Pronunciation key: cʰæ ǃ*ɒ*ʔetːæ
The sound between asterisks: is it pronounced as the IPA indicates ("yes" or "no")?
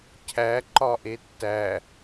yes